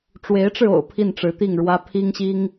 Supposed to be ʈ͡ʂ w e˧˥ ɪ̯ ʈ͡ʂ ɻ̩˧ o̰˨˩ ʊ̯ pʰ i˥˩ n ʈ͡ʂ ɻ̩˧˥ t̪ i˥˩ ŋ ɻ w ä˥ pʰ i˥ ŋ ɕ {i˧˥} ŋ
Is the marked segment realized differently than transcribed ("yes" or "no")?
yes